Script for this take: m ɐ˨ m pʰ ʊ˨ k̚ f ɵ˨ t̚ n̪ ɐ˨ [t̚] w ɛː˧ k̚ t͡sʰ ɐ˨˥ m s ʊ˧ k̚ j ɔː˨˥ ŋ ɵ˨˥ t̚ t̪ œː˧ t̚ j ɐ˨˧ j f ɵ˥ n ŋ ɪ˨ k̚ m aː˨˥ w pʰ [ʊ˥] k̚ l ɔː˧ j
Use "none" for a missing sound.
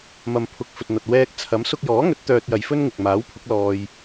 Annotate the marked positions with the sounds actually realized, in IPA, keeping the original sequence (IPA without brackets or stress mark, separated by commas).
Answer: t̚, ʊ˨˥